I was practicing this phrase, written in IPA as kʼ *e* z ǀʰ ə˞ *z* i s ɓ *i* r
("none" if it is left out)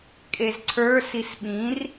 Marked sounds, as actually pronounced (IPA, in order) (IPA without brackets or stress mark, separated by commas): e, s, ĩ